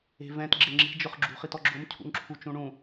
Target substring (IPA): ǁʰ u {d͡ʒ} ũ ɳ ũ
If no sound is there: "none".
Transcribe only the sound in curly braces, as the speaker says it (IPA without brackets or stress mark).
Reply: t͡ʃ